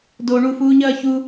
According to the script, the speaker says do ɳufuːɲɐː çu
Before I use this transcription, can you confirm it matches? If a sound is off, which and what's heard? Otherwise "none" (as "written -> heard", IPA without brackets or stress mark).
none